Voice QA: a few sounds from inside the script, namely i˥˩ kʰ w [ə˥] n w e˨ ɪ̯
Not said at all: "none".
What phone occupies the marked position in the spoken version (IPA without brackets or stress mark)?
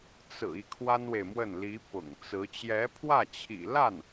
a˥